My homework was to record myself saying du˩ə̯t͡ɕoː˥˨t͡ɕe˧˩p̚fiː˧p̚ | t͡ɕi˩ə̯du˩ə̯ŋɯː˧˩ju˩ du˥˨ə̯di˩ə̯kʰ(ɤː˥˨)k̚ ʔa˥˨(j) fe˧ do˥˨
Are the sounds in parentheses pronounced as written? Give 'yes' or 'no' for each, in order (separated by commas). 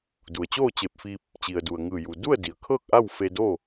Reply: yes, no